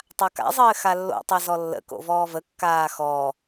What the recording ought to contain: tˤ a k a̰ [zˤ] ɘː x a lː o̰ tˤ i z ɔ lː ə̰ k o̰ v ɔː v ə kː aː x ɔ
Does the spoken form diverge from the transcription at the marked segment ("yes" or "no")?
no